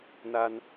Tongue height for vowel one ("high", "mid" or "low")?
low